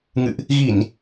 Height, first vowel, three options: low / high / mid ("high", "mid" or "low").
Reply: high